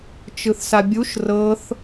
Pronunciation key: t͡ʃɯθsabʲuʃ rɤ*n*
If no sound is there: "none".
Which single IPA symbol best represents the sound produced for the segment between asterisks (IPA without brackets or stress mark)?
θ